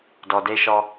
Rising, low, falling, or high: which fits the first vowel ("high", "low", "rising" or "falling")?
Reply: low